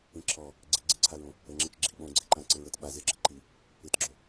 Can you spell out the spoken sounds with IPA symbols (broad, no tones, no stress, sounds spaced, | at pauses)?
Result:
ĩ ǁʰ ɔ | ɡ͡ǀ i ɡ͡ǀ i ǀʰ a ɹ õ | ə ŋ͡ǁ ɪ t͡ʃ ɡ͡ǁ i ɓ õ ɡ͡ǀ ɪ ǃ ã ǀ ɪ ɹ ə t ɓ a z ɪ ɡ͡ǁ ə ǃ i | ɪ t ɡ͡ǁ o